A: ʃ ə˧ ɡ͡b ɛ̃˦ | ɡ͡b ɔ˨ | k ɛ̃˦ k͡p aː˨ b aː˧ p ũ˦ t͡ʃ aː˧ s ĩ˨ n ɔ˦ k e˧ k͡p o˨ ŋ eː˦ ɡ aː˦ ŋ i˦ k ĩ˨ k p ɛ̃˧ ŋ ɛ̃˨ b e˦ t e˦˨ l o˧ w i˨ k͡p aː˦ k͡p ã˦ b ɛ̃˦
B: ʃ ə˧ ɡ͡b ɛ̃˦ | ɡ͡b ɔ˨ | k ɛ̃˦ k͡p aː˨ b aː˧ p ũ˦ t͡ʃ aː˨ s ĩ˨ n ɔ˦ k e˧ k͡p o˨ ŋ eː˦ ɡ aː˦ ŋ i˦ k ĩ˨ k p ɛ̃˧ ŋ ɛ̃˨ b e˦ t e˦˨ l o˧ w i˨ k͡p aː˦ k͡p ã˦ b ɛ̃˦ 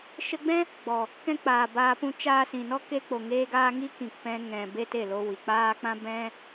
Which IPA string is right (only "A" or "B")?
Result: A